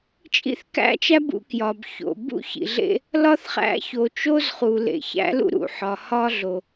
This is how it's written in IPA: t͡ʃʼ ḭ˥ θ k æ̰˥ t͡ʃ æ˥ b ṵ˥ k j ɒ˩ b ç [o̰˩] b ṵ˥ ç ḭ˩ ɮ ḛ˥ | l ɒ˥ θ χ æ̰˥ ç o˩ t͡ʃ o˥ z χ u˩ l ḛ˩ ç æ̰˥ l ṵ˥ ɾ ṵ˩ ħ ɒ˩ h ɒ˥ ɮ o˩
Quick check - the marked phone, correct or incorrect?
correct